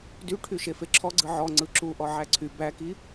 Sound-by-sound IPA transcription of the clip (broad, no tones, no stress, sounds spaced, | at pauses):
d y ʈʰ y ʃ e f e ǁʰ ɔ ɡ͡ǀ ɯ ʕ ɔ ŋ͡ǀ ɯ ǁ u ʔ ɔ ʕ æ ǀʰ y b æ k i